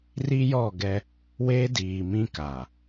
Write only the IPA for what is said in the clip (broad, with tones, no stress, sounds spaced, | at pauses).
r i˦ j ɔ˦˨ ɡ ɛ˦ | w e˦ d iː˨ m ĩ˦ k a˨